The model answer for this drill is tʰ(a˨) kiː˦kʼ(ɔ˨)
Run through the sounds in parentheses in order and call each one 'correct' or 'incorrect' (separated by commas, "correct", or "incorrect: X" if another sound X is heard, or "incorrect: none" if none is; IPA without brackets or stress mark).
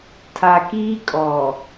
correct, correct